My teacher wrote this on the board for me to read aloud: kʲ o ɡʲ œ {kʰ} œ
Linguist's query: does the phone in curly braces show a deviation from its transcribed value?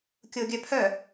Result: yes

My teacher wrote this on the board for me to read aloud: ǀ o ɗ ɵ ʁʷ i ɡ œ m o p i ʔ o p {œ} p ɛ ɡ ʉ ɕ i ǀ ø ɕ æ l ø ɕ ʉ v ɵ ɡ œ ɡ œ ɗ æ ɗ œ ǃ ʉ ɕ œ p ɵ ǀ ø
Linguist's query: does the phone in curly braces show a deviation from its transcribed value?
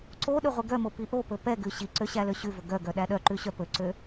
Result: yes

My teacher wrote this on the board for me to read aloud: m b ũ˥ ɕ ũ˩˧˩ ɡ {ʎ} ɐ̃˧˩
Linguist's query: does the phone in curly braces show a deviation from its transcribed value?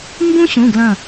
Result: yes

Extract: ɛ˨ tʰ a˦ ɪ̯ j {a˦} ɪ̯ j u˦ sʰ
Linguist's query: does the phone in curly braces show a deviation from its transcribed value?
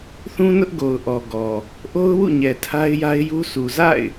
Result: no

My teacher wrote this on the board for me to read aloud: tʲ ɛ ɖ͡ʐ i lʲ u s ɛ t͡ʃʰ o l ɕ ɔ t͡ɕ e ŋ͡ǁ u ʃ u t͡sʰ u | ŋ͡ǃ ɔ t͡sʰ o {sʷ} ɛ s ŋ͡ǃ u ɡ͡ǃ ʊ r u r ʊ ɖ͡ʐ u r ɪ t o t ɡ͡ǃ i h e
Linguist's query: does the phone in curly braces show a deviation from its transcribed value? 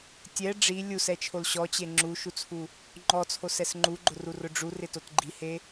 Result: yes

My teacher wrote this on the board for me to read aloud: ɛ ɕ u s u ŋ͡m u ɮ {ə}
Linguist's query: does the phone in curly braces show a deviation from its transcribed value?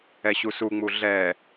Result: yes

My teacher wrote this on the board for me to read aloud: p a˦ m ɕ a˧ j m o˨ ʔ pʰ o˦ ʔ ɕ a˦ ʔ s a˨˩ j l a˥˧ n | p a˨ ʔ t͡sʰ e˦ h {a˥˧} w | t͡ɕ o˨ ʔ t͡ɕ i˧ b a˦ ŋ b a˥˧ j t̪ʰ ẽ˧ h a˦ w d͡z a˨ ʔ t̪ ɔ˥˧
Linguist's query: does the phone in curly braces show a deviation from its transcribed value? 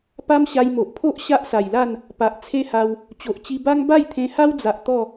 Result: yes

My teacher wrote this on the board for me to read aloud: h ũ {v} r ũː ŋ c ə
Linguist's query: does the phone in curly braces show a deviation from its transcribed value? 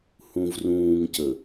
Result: no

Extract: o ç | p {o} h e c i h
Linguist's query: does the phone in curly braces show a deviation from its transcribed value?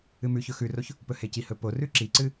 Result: yes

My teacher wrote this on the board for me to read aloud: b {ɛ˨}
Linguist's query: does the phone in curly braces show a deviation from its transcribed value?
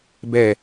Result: yes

